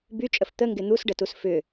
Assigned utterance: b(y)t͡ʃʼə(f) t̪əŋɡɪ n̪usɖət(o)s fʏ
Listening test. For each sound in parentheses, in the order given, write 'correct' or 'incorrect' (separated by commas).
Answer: correct, correct, incorrect